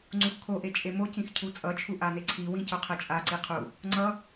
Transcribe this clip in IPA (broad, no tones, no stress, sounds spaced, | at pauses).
ŋ͡ǀ u x kʰ o ʔ e t͡ʃʼ e m o c ĩ x cʰ u t͡sʼ ʌ t͡ʃʰ u ʔ a n e ǀʰ i w ĩ c o qʰ ɛ t͡ʃʼ a ǀ i qʰ u | ŋ͡ǀ ʌ